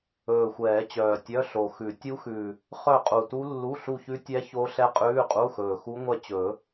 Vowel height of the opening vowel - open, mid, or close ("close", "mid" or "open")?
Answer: mid